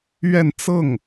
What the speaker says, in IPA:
ɥɛ˥˧nt͡sɤ˥˩ŋ

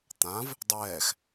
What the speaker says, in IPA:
t̪ãv | dˤɛːx

